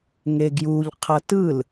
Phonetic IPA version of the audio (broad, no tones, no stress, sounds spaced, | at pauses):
ŋ e ɡ j u ʎ qʰ ʌ t ɯ l